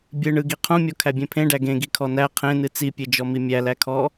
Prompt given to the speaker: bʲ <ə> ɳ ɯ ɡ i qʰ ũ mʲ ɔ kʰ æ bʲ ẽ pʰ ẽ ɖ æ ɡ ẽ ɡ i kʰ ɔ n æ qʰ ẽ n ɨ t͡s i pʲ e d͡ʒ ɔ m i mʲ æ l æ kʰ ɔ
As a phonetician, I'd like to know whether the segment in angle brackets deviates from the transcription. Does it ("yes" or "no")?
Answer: yes